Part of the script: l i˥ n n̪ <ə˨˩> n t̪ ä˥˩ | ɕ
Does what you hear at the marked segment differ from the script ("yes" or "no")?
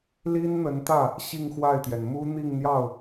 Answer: yes